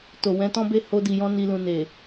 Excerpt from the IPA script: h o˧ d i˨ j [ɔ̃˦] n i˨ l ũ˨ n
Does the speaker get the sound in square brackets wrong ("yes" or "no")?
yes